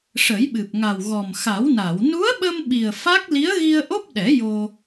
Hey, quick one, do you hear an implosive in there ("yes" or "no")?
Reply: yes